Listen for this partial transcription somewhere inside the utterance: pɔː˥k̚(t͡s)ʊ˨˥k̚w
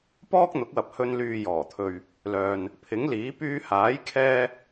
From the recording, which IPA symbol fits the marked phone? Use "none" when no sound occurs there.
n̪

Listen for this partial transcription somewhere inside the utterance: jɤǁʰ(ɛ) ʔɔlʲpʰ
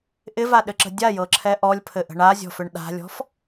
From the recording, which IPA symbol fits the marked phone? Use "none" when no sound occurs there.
ɛ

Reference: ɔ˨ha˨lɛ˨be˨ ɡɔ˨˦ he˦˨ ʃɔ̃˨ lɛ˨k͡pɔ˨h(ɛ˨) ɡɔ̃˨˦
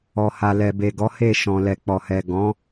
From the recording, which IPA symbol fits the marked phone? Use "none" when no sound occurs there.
ɛ˨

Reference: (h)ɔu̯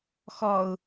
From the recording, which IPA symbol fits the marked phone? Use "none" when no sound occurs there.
x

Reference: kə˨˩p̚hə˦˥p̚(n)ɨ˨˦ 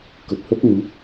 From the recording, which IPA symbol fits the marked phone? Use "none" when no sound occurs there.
n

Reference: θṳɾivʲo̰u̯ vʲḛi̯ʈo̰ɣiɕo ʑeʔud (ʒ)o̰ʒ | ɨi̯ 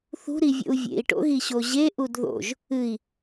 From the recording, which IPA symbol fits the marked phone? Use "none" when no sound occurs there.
ð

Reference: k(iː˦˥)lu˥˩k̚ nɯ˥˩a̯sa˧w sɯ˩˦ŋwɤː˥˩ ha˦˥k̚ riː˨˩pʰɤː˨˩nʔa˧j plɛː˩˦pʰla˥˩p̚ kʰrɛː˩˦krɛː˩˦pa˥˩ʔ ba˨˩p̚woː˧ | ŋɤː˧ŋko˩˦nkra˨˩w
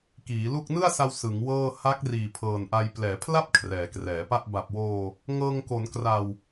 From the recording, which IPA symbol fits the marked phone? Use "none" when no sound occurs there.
iː˩˦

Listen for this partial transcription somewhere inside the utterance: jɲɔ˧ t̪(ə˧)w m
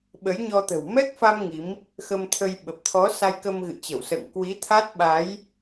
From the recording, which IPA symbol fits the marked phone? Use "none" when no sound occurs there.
ə̤˨˩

